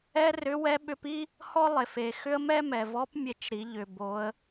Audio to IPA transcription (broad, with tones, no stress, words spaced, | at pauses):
ɛ˥rʏ˧˥wɛ˧˥ɓʏ˧˥p i˥ | hɔ˥lˠe˩fe˩ xʏ˥ə̯ mɛ˥mɛ˩vɔ˧˥p mʲe˧t͡ʃɾi˩˧ ʎʏ˩bo˩˧ə̯